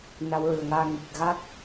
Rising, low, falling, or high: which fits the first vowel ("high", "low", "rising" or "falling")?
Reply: rising